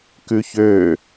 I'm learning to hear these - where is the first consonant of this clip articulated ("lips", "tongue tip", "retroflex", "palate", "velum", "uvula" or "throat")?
velum